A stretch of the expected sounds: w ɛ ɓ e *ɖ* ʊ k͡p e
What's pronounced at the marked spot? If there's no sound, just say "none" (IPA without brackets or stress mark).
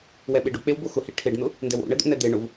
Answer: ɖ